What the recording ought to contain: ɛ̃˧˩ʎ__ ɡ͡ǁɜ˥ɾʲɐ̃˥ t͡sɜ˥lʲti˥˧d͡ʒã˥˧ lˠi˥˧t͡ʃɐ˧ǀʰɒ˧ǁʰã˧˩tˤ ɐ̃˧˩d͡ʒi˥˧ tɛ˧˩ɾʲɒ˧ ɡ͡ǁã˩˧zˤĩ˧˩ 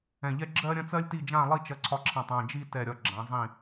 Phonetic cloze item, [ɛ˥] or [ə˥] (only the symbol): ɛ˥